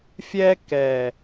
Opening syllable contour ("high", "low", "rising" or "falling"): high